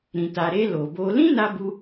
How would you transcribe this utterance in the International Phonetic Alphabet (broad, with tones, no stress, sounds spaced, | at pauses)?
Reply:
ɾ ĩ˨ t a˨ ɾ e˧ l o˨ b o˧ l ĩ˦ n a˧ b u˧